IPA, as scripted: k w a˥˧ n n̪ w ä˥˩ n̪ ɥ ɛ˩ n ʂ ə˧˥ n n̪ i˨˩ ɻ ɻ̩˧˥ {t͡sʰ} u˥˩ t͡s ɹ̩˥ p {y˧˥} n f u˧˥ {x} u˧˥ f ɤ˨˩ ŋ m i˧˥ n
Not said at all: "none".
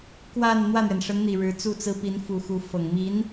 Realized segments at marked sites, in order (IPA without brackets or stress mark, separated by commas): t͡s, i˧˥, x